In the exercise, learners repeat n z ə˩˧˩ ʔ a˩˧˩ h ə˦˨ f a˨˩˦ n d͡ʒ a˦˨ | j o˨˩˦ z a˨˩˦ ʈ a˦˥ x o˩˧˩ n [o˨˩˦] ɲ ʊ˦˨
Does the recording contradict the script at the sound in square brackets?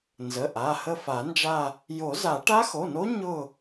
yes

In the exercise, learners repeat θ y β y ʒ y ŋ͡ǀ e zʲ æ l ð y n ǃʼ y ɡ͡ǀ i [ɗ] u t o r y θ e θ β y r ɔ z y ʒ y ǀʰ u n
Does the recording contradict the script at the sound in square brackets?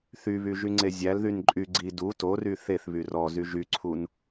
yes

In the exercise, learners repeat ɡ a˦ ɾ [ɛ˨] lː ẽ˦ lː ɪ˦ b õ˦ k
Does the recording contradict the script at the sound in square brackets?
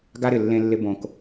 yes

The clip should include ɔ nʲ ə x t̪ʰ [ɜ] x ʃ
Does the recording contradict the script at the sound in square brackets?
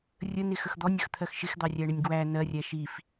no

